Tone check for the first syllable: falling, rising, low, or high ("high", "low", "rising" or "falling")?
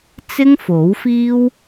high